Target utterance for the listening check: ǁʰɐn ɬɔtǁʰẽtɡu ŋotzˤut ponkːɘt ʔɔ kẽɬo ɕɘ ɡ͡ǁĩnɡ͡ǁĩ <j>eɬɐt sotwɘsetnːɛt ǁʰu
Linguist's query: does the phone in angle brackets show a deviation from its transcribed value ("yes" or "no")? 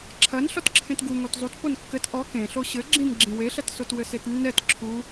yes